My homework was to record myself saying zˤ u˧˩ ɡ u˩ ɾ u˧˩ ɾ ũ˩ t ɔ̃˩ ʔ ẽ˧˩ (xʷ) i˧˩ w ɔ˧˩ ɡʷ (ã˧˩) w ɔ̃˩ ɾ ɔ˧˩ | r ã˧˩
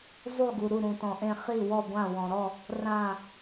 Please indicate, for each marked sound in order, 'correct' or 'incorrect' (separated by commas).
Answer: incorrect, correct